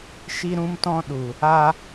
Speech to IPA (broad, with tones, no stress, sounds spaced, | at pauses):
ʃ i˦ ɾ ũ˦ m t ɔ̃˦ ɗ u˨ | a˧